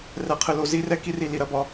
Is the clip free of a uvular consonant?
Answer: no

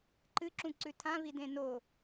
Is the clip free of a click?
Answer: no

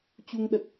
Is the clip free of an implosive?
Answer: no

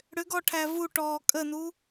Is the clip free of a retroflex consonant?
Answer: no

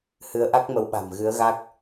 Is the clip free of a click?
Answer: yes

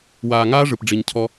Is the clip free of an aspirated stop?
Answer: no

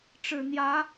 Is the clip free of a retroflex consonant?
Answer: no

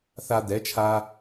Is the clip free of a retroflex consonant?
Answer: yes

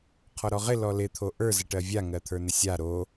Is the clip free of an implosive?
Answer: yes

